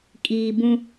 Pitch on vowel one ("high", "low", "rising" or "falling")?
low